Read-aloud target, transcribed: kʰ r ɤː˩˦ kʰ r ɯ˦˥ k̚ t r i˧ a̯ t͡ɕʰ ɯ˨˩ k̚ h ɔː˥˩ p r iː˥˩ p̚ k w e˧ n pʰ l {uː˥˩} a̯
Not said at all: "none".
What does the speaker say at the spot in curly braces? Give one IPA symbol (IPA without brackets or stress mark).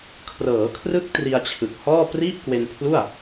u˥˩